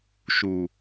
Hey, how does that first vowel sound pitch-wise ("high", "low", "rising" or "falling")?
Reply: low